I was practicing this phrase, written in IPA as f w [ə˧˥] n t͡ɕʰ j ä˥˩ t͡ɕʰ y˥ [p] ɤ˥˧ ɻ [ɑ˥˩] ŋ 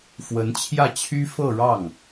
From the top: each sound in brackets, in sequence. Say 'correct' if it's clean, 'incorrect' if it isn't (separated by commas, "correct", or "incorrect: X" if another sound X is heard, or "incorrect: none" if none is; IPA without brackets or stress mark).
correct, incorrect: f, correct